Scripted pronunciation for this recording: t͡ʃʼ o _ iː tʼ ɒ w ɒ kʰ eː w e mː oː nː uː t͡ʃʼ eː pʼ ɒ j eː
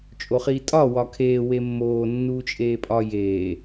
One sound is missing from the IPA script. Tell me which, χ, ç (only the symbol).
χ